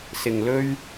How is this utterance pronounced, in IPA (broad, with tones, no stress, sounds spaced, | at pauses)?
s ɪ˨ ŋ l ɵ˧ ɥ